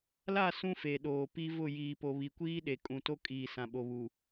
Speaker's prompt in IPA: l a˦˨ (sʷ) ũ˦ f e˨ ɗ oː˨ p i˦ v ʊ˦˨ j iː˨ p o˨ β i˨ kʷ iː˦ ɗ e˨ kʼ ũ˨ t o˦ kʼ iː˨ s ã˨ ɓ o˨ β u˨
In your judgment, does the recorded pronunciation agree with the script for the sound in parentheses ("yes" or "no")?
no